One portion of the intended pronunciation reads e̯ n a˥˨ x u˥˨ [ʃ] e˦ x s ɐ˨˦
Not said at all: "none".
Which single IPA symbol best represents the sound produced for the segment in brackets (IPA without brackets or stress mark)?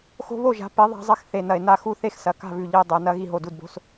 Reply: θ